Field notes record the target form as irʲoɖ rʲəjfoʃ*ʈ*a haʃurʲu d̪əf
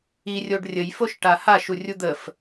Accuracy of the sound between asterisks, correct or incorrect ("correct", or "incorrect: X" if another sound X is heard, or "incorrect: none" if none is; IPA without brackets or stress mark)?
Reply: correct